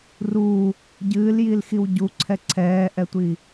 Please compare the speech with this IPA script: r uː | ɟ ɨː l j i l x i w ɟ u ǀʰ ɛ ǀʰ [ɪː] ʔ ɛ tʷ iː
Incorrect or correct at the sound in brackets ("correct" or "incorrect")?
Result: incorrect